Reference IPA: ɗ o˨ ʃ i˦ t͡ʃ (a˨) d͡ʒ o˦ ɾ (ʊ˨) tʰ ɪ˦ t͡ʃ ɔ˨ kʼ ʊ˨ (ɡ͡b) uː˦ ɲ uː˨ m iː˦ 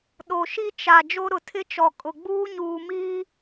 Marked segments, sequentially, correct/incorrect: correct, correct, correct

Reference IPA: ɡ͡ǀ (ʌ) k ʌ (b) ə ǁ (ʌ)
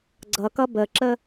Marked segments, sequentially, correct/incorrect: correct, correct, incorrect: ə

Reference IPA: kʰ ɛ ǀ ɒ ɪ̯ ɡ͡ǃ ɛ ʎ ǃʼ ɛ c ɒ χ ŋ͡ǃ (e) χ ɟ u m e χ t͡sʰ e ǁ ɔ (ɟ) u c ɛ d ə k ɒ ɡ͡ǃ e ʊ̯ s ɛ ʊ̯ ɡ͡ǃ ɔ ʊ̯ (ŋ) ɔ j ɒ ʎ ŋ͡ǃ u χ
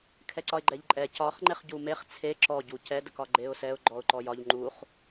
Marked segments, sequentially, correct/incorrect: correct, correct, incorrect: ǃ

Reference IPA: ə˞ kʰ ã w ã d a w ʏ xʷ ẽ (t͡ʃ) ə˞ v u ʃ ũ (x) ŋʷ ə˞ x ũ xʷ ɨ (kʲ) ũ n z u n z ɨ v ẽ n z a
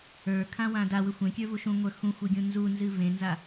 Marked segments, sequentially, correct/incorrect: incorrect: kʲ, incorrect: none, incorrect: ɡʲ

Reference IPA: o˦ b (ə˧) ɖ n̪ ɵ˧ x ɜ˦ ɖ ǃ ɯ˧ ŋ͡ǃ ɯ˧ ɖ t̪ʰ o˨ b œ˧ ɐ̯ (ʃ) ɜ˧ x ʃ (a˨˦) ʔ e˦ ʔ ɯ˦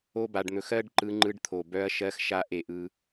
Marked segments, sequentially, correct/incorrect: incorrect: a˧, correct, incorrect: a˧

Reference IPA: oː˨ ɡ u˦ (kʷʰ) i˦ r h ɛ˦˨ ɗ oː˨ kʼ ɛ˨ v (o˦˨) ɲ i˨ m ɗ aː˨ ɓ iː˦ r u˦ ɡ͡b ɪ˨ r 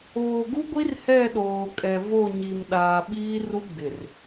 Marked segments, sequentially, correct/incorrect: incorrect: ɡʷ, correct

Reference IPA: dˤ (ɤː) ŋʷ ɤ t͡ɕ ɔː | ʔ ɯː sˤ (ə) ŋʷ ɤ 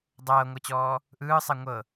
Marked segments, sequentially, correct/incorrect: correct, incorrect: ɛ

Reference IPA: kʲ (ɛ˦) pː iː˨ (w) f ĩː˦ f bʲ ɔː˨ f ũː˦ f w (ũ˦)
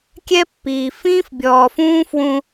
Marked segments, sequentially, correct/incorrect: correct, incorrect: none, correct

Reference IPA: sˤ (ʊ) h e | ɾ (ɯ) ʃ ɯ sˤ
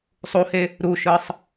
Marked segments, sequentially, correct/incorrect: incorrect: u, incorrect: u

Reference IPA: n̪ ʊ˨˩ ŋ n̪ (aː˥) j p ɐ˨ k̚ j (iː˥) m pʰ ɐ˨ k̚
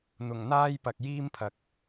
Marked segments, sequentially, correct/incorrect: correct, correct

